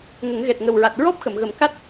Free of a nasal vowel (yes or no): yes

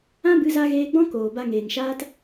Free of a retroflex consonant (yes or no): yes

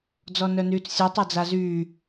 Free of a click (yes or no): yes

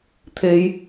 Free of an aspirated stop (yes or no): no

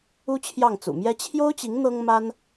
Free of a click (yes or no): yes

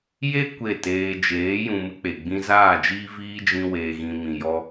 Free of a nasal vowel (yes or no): no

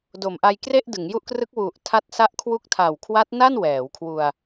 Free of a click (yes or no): yes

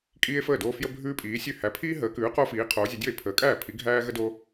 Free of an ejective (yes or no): no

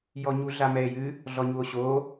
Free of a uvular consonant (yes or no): yes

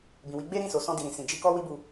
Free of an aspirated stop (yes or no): yes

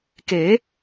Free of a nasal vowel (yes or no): yes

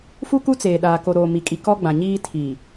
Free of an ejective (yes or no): no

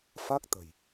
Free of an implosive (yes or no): yes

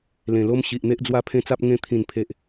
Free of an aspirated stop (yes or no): no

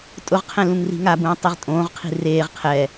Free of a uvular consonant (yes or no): no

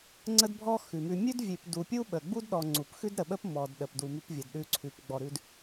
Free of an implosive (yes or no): no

